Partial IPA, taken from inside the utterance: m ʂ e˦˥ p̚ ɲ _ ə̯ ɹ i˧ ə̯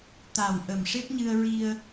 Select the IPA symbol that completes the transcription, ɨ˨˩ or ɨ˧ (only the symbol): ɨ˧